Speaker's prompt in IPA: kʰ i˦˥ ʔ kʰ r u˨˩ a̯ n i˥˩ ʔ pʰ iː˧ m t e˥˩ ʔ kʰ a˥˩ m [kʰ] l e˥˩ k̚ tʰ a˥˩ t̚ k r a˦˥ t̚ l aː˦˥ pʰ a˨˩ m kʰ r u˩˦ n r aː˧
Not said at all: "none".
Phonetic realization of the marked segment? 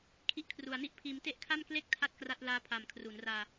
k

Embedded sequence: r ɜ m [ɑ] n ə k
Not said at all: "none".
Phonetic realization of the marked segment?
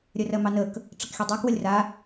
ɑ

